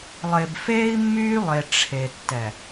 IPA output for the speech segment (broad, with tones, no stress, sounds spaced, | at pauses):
lˠ e˨ b f eː˦ i̯ mː yː˦ lˠ e˨ ʈ͡ʂʰ e˨ tː ɛ˨